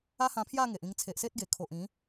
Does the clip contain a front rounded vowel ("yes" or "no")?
no